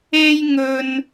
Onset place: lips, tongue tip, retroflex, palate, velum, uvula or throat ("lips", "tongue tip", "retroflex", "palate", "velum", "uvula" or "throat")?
palate